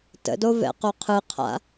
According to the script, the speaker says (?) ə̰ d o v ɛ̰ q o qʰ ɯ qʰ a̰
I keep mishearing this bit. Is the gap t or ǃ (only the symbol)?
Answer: t